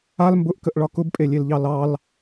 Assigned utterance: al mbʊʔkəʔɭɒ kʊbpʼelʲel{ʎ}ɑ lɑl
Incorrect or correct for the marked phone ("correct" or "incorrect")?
correct